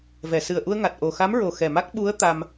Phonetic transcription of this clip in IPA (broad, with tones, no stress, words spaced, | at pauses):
vɛ˨˩˨sɨ˨˩ə̯ʔu˧ə̯ŋa˨˩t̚ ʔo˨˩xa˧˥mɹo˨˩ xɛ˨˩ma˦˥k̚ ɓu˧˥ə̯ t̪a˧m